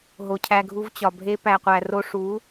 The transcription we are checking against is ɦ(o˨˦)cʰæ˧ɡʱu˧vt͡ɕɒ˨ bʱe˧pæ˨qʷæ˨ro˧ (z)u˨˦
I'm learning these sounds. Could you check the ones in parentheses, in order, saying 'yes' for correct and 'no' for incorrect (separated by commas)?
no, no